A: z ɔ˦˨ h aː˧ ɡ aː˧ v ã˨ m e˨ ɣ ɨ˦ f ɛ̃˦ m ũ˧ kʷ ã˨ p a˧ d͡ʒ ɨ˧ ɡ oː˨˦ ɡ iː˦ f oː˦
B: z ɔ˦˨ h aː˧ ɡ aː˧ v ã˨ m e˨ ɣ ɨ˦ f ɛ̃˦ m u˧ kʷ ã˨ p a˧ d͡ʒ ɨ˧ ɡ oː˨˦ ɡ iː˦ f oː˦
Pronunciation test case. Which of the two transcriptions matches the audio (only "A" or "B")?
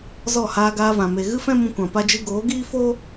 A